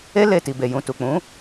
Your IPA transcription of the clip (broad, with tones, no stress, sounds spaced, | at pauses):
e˦ l e˦˨ t i˨ b e˨ j ũ˨ t u˨ k͡p ũ˨˦